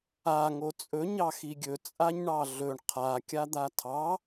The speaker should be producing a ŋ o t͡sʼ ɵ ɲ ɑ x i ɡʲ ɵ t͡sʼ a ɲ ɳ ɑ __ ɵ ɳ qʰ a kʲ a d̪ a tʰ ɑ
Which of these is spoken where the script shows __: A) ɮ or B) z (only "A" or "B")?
A